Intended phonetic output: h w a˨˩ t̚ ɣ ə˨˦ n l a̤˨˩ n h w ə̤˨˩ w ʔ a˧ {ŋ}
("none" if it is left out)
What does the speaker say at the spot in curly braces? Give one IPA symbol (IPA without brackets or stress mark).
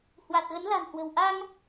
ŋ